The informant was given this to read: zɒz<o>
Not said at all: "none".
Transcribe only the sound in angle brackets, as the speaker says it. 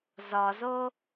o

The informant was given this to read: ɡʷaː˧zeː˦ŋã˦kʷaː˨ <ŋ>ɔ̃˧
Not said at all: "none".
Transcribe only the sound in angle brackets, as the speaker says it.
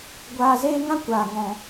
ŋ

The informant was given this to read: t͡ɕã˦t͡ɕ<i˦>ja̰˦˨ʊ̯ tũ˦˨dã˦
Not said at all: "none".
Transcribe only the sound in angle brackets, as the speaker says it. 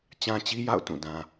i˦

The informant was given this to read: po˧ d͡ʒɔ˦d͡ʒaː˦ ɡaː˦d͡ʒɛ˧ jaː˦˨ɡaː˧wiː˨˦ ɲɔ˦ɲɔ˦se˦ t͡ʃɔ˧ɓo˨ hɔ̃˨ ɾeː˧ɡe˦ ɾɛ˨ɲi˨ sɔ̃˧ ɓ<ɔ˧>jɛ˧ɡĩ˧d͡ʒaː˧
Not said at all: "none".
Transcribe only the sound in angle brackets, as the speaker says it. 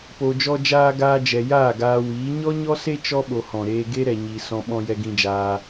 ɔ̃˧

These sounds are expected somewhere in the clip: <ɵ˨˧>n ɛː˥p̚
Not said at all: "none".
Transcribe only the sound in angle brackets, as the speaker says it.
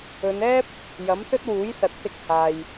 ɵ˨˧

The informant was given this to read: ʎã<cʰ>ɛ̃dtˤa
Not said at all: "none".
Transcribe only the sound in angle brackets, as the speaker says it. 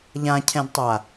cʰ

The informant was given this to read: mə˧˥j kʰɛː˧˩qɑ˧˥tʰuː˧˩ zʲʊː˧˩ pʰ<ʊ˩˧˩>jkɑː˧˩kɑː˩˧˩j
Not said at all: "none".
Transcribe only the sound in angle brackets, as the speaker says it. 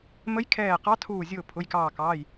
ʊ˩˧˩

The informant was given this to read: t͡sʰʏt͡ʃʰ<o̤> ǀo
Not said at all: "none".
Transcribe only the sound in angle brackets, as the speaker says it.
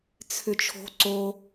o̤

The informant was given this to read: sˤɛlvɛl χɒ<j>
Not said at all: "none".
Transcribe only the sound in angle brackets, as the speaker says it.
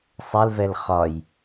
j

